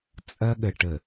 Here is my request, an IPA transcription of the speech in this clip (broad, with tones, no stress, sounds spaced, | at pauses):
t͡sʼ ɐ˦ ɠ ə˨ ʈ ə˨